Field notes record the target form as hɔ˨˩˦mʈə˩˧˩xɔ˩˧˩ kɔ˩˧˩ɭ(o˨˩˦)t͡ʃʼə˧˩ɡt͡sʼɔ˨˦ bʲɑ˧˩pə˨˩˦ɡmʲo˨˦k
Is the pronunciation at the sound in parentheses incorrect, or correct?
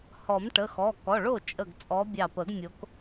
incorrect